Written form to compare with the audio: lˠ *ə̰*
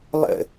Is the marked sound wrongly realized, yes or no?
no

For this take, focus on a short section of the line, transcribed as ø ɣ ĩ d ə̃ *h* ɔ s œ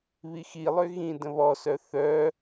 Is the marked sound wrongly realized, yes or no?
yes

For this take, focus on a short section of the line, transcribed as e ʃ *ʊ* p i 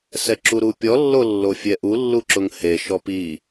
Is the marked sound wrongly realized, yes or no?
yes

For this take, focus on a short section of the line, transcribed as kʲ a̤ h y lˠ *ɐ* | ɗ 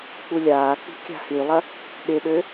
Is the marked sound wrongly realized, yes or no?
no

